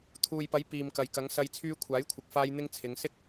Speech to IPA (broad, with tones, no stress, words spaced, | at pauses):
t̪ʰuː˨jpɐ˨˥j piː˨mkɐ˨j kɐ˨˥ŋ sɐ˧j t͡sʰyː˧kʷʰaː˨˥jkʷʰɪ˨k̚faː˧j n̪ɪ˥ŋ t͡sʰɪ˨˧ŋ sɪ˥k̚